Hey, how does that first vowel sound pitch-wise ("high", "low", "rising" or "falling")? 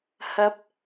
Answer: rising